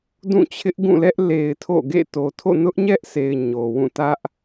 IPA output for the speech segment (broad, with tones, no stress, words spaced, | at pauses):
dũ˦˨t͡ɕʰɪ˦ʔɡũ˦˨lɛ˦ʔ le˨ɪ̯ tʰo̰˦˨ ɡḛ˦˨ to˨ tʰo̰˦˨nʊ˦ʔɲɛ˦ʔse˨ɪ̯ ɲo˨wũ˦˨ tä˦ʔ